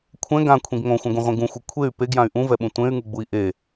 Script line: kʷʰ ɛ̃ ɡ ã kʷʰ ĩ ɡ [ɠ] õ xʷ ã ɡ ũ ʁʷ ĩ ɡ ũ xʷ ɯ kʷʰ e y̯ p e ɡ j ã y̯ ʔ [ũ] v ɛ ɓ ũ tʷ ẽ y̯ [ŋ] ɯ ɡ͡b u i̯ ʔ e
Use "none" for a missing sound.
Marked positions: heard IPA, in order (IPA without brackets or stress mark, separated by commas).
ŋ, ũ, ŋ